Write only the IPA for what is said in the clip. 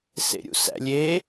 s ḛ ɾʲ ṵ s æ̰ lʲ e

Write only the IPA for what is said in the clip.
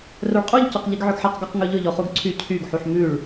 r œ ɭ qʼ u ʎ c ɔ q ʎ i ɡ ʕ ɵ ɡ ħ ɛ q ɡ ɔ q ŋ ɵ ʎ ɵ ʎ ɔ χ u ɡ ǀʰ y cʰ y ɡ ħ u ħ m ʉ ɭ

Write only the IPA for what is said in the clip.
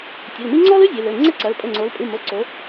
tʲ ɘ˩˧˩ l m i˥ ŋ͡ǀ ɔ˥ l ɨ˥ zʲ e˩˧ l ɘ˩˧˩ ŋ͡ǀ ɛ˥ ǀ ɐ˩˧˩ l pʼ ɘ˩˧˩ ŋ͡ǀ o˩˧ l pʼ ɨ˩˧˩ m o˩˧˩ ǀ o˩˧

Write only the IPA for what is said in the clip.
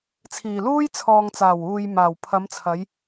t͡sʰ iː˨˩ l uː˥ j t͡sʰ ɔː˨ ŋ t͡s aː˨˩ w uː˨ j m aː˨˩ w pʰ ɐ˨˧ m t͡sʰ ɐ˨˧ j

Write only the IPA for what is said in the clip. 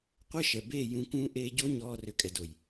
qʷ ə˦ ʃ ɛ˨ b eː˦˨ j ũ˧ k ũː˦ ʔ eː˦ ɟ o˦ ɲ ɔː˧ r ʏ˨ kʼ ɛ˨ d o˨ j

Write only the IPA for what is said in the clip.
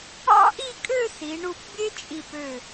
ɑ̰˥ ʔ i˥˧ kʼ ø˥˧ s i˩˧ ɳ u˧˩ p bʲ e˥ t͡ʃʼ i˧˩ p ø˧˩

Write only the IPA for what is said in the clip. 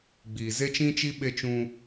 ɡ͡b iː˨ z e˦ t͡ʃ ĩ˦ t͡ʃ i˦ ɓ e˦ t͡ʃ ũ˦

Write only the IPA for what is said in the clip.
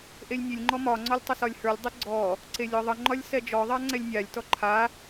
ʔ e lʲ nʲ e lʲ ŋ͡ǃ ɔ m ɒ ŋ͡ǀ ɔ lʲ tˤ ə s ɒ lʲ h ə˞ lʲ dˤ e ɡ͡ǀ ɔ | ǀ e lʲ ɔ ðˤ ə ŋ͡ǃ ɒ lʲ s ɛ d͡ʒ ɔ ðˤ a ŋ͡ǀ ɛ lʲ nʲ a lʲ t ɔ ǃʰ a

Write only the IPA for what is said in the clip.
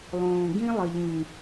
lˠ õː˨ ɡ ĩ˦ lˠ ə˨ ʎ ĩ˨

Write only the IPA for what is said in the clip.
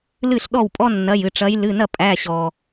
l ɨ˥˩ ɬ ɗ ɔ˥˩ w pʼ ɔ˥ nː ɐ˩˧˩ j ɨ˩ ʈ͡ʂ ɐ˨˦ j l ɨ˩˧˩ n ɐ˥˩ pʼ æ˩˧˩ ɕ ɔ˩

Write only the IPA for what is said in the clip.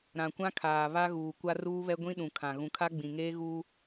ɾ ã˨ kʷ ã˦ kʰ aː˨ β a˦ ɣ uː˨ kʷ a˦ r uː˦ β ɛ˦ ɡʷ ĩ˦ ɗ ũ˨ kʰ ã˨ ɣ ũ˨ kʰ a˦ ɡ͡b ĩ˨ ŋ eː˦ ɣ uː˦

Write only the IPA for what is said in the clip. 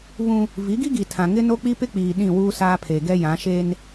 β ũ˦ | v i˨˦ ɡ i˦ ɡ i˨ tʰ ã˨ ŋ ɪ˦ n o˦ k͡p i˦ p ɪ˦ k͡p iː˨ ɗ ĩ˦˨ w uː˦ s aː˦ pʰ e˨ ɡ ɛ˦ j ã˨˦ ʃ e˦ n

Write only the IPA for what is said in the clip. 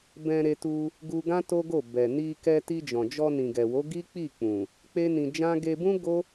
b ɛ̃˧ ɾ e˧ t u˧ | ɡ u˧ ɡ ã˦ t o˦ ɡ o˦˨ b ɛ˨ n i˧ k ɛ˧ t i˧ d͡ʒ ɔ̃˨ d͡ʒ ɔ˧ n ĩ˨ ɡ ɛ˨ w o˨˦ ɡ i˦ k͡p i˦˨ k͡p ũ˨ | k͡p e˦ n ĩ˧ d͡ʒ ã˦ ɡ e˧ b ũ˦ ɡ o˦

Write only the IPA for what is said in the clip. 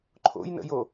ǃʰ o̰ j n ə̰ j o

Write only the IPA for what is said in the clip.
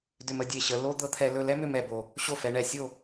d ʏ˧ m ə˥˧ dʲ e˧˩ ɕ ə˩˧ l o˥ d̪ ɤ˥ t̪ʰ ɛ˧ l ɵ˧ l ɛ˥ m ʏ˥ m ɛ˧˩ b o˧˩ | ɕ o˥˧ f ɛ˩˧ ɳ ɛ˧˩ sʲ o˥˧

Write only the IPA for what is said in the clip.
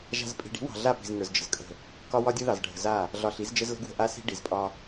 ʒ a̤˨ z pʼ i̤˨ ɖ i̤˨˦ w ɑ̤˨ ɮ a˦˨ p i̤˨ z ŋ ə˞˨ z d͡ʒ ə̤˨ z kʼ ə̤˦˨ | k ɒ˦ w ɒ˦ dʲ ɯ˦ ð ɑ˨ z ɖʱ ə̤˨ z a˦˨ | ɮ ɒ˨ ɬ i˨˦ z d͡ʒ ə˦ z l ə̤˦ ɡ w ə̤˦˨ ʔ a˦ s i̤˦ ɖ i˨ z pʼ ɒ˦

